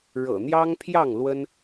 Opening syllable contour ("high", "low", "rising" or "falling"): low